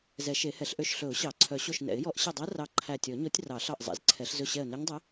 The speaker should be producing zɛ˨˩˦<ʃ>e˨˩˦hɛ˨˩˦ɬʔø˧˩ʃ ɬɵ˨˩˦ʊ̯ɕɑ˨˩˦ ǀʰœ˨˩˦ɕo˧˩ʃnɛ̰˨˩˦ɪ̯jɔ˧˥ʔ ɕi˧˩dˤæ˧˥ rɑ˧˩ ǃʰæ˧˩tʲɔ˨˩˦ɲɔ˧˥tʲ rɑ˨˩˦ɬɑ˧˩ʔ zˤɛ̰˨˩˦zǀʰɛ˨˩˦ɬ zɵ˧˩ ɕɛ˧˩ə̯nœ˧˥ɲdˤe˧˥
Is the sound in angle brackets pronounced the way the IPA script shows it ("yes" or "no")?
yes